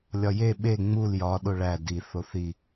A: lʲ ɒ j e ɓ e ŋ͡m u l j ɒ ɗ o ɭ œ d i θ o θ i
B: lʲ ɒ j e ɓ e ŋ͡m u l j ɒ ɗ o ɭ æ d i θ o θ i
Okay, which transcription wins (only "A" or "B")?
B